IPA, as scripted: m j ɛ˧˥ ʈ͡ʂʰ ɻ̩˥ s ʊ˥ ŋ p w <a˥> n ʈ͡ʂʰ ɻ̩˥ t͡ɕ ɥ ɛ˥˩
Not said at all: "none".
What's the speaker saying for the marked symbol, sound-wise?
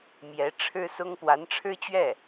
a˧˥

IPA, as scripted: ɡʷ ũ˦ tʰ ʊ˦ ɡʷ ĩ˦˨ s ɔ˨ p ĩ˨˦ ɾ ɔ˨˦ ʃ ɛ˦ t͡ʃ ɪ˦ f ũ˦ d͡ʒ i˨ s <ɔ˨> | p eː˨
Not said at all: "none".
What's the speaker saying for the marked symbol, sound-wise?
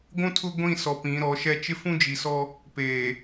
ɔ˦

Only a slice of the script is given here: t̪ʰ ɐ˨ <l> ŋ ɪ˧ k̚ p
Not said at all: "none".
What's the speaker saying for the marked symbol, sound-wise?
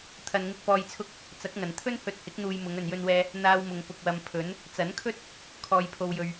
n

